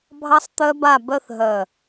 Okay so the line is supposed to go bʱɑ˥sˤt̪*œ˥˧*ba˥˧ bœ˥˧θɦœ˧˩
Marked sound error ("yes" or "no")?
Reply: yes